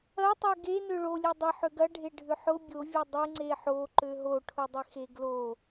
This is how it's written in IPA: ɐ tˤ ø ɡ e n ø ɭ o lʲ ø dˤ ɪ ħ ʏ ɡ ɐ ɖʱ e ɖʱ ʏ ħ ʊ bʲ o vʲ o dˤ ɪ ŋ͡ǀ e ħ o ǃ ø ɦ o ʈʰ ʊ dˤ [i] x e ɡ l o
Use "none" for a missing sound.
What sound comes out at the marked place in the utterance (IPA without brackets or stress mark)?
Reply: ɪ